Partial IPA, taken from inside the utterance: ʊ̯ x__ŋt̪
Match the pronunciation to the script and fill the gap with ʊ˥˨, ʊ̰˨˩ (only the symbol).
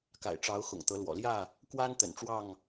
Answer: ʊ̰˨˩